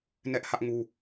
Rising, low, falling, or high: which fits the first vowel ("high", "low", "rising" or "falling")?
high